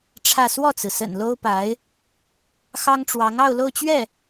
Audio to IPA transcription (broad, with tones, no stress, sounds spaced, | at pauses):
ʈ͡ʂʰ ä˥˧ s w ɔ˥˩ t͡s ɹ̩˩ s ə̰˨˩ n l o˥ ʊ̯ p a˧˥ ɪ̯ | x ɑ˥ ŋ ʈ͡ʂ w ɑ˧˥ ŋ ɑ˥˧ ʊ̯ l o˥˧ ʊ̯ t͡ɕ ɥ ɛ˥˩